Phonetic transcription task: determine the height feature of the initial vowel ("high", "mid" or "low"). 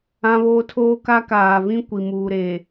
low